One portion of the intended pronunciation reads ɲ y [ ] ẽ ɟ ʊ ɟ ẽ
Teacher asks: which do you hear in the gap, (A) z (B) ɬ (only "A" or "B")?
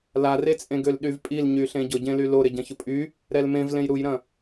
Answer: B